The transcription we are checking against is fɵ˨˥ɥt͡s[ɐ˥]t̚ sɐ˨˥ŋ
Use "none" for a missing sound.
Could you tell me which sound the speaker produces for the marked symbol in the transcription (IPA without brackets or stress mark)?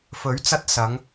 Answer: ɐ˥